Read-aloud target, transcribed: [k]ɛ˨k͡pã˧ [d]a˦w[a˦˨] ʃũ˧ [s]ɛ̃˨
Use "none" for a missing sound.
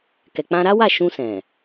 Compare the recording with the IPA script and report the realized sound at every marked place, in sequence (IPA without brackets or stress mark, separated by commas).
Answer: k, ɾ, a˦˨, s